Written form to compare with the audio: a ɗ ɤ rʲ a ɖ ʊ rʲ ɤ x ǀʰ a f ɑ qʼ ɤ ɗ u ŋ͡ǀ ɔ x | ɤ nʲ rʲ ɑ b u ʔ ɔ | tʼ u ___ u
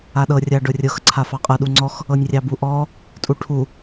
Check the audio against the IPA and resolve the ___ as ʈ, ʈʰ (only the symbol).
ʈʰ